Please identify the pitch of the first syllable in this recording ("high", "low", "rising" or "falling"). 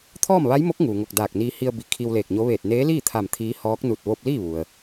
falling